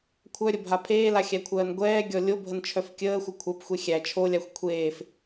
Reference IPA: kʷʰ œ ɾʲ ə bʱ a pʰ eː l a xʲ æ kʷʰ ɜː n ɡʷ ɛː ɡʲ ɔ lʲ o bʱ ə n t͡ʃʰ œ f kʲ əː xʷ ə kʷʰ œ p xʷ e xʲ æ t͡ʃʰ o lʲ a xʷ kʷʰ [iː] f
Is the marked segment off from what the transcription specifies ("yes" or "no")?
yes